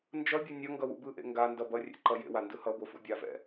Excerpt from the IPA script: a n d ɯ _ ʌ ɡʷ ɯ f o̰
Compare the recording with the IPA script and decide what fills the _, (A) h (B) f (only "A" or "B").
A